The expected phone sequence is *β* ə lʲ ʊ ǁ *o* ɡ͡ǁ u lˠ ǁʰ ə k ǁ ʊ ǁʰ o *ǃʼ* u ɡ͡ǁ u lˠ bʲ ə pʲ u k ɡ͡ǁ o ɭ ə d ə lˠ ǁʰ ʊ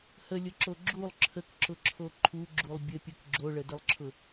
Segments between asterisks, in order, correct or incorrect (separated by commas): incorrect, correct, incorrect